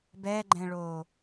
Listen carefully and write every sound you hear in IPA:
b ɛ ɡ͡ǃ ɛ̃ ɭ o

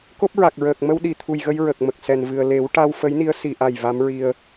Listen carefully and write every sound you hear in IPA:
k o˦˥ p̚ ɹ a˨˩ k̚ ɹ əː˨˩ k̚ m ə˧ w ɗ i˨˩˨ t̪ʰ u˨˩ j ɣ ə˧ j ɹ ə˨˩ k̚ m ə˨˩ k̚ s ɛ˨˩ n v ɨ˨˩ ə̯ l e˨˩˦ w ʈ a˧ w f ə˧˥ j n i˧˥ ə̯ s i˨˩˨ ʔ a˨˩ j v a˧˥ m ɹ i˧ ə̯

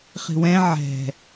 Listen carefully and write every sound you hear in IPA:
χ i̤ w ɛ̃ ʕ ɛ̤

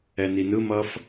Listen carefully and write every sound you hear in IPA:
ɛ n i n ɯ m ʌ f

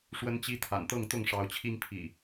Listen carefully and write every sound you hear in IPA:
ʂ w ə˨˦ n t͡ɕ i˨˦ t̪ʰ a̰˨˩ n t̪ ɤ˥˨ ŋ t̪ ʊ˥˨ ŋ ʂ ɑ˨˦ ʊ̯ t͡ɕʰ i˦ ŋ pʰ ḭ˨˩

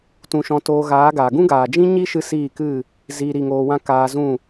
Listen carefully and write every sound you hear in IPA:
t ũ˧ ʃ ɔ̃˧ t oː˧ ɣ aː˨˦ ɡ aː˨ ɡ ũ˦ ɡ aː˨ d͡ʒ ĩ˦ ɲ i˦ ʃ ɨ˦ s iː˦˨ k ɨ˦˨ | z iː˧ ɾ i˧ ŋ oː˧ w ã˦ k aː˧ z ũ˦˨

